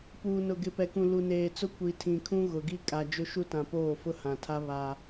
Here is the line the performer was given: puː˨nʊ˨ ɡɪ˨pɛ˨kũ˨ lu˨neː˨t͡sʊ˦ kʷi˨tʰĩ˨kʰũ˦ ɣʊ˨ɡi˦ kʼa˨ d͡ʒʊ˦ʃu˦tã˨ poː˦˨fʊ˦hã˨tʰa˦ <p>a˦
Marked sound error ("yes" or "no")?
yes